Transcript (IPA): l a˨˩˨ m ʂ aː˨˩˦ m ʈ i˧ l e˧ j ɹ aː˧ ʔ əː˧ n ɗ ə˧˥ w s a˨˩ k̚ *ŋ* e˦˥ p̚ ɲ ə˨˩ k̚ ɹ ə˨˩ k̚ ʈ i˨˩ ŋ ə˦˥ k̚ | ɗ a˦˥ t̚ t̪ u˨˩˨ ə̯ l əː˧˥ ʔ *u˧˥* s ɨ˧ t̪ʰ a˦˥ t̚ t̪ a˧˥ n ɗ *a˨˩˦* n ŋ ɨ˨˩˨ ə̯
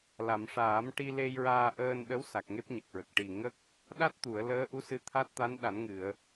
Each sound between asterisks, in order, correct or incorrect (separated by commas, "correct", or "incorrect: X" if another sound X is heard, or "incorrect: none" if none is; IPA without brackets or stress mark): correct, correct, correct